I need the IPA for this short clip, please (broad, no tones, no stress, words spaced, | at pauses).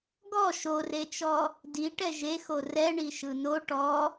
ɡɔ ʃoret͡ʃɔ | diʈɛ ʒexo rɛɳi ʃɯno ʈɔ